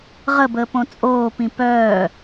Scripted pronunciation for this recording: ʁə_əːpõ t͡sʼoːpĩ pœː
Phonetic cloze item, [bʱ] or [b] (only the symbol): b